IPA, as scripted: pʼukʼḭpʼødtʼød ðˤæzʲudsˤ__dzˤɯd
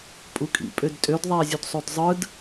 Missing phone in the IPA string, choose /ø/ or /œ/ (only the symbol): ø